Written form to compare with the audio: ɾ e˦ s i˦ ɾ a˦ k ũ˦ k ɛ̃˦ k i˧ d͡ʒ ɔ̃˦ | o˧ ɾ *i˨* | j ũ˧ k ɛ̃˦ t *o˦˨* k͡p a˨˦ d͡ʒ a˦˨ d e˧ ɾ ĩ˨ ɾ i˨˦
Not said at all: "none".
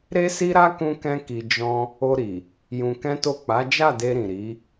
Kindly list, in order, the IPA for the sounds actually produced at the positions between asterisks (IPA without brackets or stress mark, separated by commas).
i˨, o˦˨